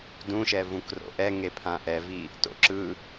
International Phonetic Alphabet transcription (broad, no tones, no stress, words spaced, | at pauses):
dũʃɛ vũkro̰ʔɛ ŋepʰãʔɛvi | to̰ǁɯ